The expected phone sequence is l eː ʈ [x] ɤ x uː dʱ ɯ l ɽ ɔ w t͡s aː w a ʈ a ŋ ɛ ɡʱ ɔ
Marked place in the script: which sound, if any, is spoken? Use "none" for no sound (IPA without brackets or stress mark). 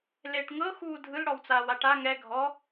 ŋ